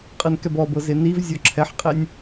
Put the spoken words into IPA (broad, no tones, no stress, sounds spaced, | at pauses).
qʼ ɯ n k ɛ b ɔ b ɤ z e n i v zʲ ɔ ǁʰ ɛ ħ qʼ e nʲ